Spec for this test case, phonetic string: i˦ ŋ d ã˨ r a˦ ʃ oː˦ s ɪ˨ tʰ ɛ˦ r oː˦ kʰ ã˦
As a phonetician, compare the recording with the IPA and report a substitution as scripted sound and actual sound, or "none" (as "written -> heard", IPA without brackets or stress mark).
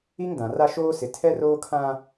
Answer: none